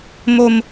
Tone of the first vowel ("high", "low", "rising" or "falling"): high